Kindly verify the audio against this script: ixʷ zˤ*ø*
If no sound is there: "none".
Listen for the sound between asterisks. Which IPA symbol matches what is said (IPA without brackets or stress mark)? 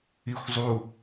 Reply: u